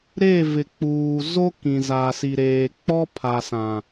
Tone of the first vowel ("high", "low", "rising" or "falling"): falling